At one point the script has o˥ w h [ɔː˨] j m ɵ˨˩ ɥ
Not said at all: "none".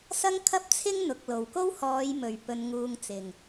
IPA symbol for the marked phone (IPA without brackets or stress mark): ɔː˨˧